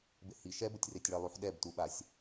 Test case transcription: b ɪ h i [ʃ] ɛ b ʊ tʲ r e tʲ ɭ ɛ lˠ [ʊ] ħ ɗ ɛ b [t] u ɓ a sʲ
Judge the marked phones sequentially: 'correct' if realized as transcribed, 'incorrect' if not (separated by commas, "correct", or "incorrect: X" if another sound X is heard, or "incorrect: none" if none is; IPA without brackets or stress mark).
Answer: correct, incorrect: u, correct